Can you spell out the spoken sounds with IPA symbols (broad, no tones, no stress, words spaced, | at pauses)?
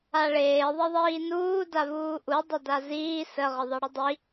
aɭeː ðˤeðˤiːnuː davuːʔu dˤədaziː sə ʁəðˤeɽədˤi